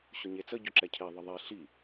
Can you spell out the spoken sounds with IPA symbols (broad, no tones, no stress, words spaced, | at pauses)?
ɕʊɲet͡sə ɟʊǁɛcʰe ðˤəðˤe ɬi